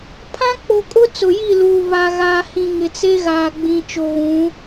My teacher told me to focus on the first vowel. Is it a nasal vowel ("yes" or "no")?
yes